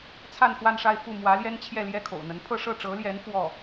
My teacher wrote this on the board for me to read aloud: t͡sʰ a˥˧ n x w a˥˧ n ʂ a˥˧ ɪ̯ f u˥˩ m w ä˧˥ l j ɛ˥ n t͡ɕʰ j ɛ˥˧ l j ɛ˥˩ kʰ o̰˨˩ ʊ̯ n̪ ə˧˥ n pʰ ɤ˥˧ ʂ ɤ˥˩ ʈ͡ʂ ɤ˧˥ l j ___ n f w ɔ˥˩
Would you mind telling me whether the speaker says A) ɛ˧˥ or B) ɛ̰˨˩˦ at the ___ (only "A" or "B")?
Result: A